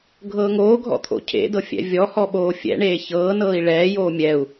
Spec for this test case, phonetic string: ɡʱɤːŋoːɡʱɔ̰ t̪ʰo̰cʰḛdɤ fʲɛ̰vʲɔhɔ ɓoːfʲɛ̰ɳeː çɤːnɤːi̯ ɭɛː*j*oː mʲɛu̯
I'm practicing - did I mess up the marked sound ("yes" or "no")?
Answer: no